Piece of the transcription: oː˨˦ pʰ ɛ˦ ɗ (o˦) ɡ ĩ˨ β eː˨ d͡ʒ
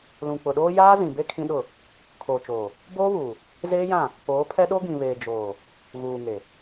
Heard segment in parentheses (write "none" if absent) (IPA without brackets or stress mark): o˦